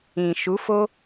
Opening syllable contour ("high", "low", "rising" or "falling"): low